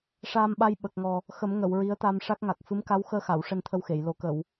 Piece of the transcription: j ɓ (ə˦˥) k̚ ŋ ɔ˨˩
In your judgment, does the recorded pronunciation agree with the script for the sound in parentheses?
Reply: no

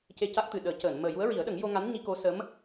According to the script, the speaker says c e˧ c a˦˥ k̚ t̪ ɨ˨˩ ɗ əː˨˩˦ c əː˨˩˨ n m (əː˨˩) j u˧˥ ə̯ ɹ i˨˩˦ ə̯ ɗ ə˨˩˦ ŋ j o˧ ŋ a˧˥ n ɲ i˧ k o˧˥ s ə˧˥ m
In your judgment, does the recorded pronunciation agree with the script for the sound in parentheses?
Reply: yes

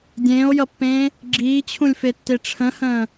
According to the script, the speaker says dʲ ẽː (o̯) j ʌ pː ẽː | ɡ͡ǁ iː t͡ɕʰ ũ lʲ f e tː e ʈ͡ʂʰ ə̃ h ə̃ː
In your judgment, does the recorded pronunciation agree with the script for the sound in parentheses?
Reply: yes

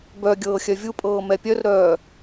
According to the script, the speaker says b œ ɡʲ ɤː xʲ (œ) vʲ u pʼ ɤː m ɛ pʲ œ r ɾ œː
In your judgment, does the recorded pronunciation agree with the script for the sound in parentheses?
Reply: yes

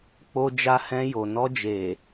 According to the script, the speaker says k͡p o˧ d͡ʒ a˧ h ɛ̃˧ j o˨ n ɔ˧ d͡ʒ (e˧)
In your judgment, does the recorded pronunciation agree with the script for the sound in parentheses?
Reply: no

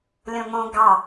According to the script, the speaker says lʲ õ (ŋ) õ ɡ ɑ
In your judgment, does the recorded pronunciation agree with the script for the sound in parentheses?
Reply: yes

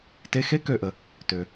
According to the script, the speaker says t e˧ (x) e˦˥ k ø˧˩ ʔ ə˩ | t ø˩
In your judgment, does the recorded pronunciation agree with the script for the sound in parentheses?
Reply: yes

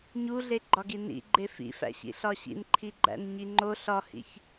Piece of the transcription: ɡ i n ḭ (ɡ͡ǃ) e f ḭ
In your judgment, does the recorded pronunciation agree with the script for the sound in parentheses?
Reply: yes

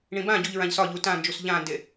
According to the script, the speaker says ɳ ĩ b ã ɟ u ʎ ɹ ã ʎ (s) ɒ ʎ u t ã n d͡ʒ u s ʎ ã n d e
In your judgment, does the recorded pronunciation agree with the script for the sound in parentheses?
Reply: yes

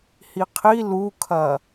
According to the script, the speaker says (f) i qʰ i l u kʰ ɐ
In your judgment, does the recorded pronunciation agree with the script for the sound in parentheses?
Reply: no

